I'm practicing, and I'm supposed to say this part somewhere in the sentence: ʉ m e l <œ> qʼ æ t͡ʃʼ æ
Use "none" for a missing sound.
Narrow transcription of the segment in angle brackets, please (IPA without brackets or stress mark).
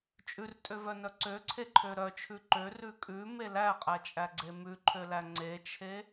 æ